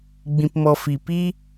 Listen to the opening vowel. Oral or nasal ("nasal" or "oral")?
nasal